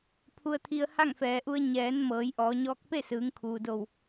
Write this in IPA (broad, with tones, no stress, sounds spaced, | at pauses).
pʰ u˧ ə̯ t̪ʰ i˧ ə̯ h a˥˨ ŋ f ɛː˩ ʔ u˧ ə̯ ɲ ɛː˩˧ n m ɤː˩˧ j ʔ ɔː˩˧ ɲ ɔː˧˥ k̚ p e˥˨ s ɯː˩˧ ŋ kʰ uː˩ d o˧˩ w